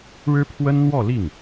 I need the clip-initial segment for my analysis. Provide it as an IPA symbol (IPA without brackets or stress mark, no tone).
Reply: ɻ